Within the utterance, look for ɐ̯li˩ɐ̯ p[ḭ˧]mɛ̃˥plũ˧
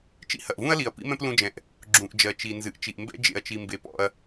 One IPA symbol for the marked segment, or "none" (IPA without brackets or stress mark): ḭ˥